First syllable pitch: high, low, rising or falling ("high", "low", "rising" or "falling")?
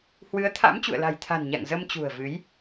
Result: rising